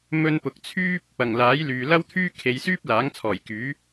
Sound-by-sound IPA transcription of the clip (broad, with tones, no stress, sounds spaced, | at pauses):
m ɵ˧ n p ʊ˨ k̚ t͡sʰ yː˥ p̚ | ɐ˨˩ ŋ l aː˨˥ j l yː˨ l ɐ˥ w t̪ʰ yː˥ kʰ e˨˧ j s yː˥ p̚ l aː˨˥ ŋ t͡sʰ ɔː˨˩ j k yː˨˥